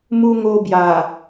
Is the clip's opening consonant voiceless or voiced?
voiced